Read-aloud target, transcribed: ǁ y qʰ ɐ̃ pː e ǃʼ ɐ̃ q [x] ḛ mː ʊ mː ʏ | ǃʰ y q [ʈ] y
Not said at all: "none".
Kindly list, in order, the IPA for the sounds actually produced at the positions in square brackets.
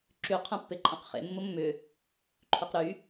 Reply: χ, ɾ

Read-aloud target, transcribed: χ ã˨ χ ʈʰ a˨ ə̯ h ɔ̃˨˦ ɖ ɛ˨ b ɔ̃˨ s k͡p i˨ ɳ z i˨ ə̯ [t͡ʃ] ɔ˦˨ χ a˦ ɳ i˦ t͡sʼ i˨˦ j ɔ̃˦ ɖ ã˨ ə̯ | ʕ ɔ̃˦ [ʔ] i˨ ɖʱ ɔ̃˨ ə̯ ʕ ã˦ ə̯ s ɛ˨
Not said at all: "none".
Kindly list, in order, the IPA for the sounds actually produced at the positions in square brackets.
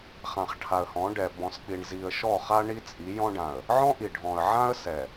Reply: ʃ, ʔ

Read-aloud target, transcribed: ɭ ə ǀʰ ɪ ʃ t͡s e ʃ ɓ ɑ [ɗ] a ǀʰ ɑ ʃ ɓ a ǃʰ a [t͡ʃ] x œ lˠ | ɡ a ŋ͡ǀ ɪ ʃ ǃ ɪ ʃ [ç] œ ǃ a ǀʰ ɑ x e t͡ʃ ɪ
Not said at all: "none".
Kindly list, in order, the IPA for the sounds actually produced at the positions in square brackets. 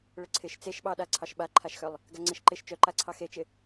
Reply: ɗ, ʃ, t͡ʃ

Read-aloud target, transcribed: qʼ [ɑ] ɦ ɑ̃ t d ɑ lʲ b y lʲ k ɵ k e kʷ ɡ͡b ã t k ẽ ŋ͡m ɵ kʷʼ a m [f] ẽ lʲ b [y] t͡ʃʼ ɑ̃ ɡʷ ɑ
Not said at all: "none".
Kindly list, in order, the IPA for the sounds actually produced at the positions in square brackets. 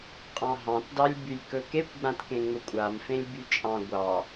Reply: ɑ̃, f, y

